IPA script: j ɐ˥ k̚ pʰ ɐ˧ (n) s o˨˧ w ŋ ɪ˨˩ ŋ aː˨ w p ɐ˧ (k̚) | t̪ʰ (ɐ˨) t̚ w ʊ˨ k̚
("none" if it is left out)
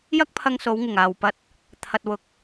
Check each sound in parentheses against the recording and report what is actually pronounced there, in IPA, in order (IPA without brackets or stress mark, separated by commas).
ŋ, t̚, ɐ˨